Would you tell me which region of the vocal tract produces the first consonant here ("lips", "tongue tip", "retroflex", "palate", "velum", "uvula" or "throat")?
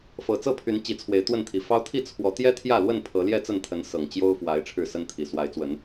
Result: lips